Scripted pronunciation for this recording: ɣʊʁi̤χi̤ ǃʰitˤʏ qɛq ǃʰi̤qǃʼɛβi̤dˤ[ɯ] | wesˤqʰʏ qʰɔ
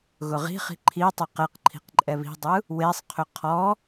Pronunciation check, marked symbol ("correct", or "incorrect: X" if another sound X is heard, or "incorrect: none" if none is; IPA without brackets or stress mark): correct